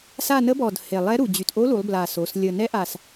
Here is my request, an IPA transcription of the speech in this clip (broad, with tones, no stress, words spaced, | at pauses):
sa˦˨nə˧˥bɔ˨˩d he˨˩lˠɛ˧˥ɾu˨˩ d͡ʑy˨˩tʔo˧˥lu˩˧lˠ bla˨˩so˩˧s lʲə˨˩nɛ˧˥ʔa˨˩s